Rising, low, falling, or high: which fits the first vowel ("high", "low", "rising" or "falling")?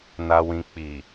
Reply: low